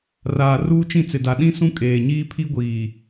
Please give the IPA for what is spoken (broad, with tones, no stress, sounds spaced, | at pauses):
r aː˨ r uː˦ t͡ʃ ĩ˦˨ t͡s ɪ˨ d a˨ ɗ ĩ˦ s ũ˦ kʼ eː˨ ɲ iː˦ pʰ i˦ ɡʷ iː˨